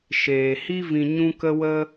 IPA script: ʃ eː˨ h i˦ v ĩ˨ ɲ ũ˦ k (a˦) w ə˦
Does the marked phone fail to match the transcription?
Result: yes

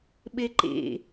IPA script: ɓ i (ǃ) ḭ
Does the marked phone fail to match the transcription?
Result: no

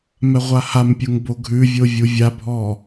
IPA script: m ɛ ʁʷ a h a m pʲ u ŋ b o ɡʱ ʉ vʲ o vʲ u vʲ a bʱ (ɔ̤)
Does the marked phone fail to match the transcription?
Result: yes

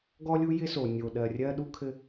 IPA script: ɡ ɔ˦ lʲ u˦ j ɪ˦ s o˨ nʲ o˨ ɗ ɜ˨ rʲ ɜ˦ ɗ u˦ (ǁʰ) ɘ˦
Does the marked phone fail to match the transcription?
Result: yes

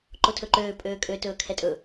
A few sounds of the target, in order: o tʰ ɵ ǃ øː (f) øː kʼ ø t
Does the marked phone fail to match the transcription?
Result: yes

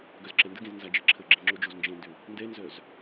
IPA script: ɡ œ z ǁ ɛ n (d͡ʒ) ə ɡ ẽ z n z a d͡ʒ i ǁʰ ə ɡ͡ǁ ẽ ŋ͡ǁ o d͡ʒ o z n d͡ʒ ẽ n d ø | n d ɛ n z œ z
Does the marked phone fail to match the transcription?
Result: yes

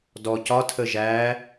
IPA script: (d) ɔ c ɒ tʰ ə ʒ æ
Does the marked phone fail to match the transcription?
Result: no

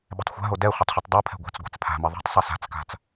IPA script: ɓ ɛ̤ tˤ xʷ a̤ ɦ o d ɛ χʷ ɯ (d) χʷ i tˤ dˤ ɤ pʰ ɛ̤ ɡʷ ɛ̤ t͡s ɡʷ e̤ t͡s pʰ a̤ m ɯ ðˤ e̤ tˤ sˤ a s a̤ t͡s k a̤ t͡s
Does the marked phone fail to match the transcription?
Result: yes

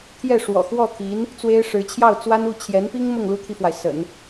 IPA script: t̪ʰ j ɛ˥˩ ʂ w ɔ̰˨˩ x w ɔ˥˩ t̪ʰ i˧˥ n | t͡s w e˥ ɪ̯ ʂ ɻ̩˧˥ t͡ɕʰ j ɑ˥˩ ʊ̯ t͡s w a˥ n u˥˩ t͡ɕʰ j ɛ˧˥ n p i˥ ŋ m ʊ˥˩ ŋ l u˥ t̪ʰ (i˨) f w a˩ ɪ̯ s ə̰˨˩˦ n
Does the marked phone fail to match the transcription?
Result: no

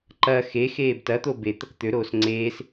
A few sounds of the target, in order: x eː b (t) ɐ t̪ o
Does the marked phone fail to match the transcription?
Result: no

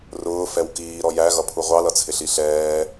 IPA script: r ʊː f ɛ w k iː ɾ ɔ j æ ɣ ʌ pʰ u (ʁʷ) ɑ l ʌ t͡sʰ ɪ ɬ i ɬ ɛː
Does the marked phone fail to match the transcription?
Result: no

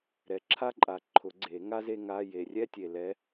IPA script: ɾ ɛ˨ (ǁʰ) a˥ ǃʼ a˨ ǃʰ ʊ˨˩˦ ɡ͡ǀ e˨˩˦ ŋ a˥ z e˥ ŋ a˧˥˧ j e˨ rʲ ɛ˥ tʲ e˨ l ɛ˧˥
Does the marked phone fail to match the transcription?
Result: no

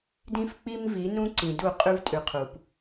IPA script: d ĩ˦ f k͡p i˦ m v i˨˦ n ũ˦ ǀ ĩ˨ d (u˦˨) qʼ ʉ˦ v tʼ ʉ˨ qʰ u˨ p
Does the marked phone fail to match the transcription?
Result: no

